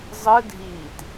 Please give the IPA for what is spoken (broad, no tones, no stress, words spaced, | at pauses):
zˤɯ dʱiːt